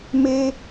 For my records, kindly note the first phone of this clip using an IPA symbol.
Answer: m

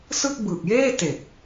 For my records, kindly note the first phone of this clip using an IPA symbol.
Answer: s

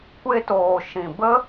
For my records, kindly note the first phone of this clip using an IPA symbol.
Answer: kʷ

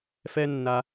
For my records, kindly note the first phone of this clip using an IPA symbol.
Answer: f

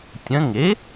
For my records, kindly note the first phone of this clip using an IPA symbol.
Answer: tʲ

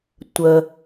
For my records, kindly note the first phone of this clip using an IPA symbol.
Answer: tʷ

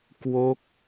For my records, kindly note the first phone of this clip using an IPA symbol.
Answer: k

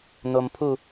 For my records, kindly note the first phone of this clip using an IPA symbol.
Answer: n̪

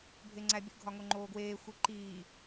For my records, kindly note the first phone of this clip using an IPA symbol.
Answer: bʱ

